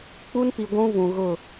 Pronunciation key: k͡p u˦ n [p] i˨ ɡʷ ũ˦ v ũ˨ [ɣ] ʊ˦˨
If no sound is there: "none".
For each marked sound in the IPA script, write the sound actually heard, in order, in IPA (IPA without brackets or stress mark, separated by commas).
p, ɣ